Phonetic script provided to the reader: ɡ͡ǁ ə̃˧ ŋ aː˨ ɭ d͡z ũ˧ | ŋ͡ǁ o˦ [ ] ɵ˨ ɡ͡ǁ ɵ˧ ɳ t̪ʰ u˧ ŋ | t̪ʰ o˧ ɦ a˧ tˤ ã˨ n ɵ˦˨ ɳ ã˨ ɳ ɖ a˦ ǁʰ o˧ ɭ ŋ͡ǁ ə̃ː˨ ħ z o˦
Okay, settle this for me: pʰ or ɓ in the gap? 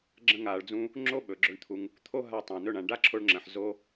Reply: ɓ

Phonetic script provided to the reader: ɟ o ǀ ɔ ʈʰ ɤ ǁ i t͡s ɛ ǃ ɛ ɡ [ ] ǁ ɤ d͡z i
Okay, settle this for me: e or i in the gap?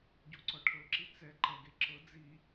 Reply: e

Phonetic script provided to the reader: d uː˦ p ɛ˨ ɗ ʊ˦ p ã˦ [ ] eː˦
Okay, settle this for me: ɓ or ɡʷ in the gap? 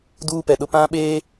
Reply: ɓ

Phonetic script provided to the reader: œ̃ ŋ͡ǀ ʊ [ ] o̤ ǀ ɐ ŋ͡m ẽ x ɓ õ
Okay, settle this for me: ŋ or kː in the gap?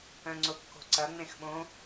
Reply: kː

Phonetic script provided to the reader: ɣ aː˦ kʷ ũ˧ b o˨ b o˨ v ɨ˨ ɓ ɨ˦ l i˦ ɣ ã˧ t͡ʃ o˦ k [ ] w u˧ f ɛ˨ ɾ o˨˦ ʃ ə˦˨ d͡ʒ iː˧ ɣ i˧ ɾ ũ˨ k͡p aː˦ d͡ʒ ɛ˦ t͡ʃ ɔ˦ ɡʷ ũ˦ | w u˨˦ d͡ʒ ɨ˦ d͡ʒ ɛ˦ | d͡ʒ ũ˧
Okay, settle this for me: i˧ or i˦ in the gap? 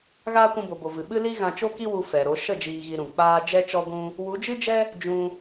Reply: i˦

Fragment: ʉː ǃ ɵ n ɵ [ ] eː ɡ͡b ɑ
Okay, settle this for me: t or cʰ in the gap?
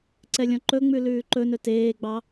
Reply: t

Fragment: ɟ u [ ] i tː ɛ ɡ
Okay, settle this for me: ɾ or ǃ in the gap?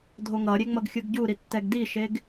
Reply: ɾ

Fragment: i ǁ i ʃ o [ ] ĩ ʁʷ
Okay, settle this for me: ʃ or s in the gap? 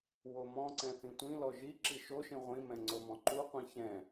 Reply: ʃ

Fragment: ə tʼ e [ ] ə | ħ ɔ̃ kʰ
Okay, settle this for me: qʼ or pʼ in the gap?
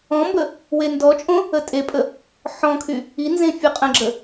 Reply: pʼ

